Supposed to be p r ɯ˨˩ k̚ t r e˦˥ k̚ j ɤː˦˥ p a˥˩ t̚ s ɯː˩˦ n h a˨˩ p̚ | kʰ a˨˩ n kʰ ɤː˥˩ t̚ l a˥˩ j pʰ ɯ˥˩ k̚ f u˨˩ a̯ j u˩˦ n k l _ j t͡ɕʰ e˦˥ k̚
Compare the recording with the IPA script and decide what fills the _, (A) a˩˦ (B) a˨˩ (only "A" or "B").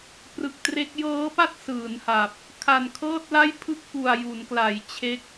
A